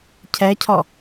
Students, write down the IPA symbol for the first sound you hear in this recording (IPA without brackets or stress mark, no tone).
cʰ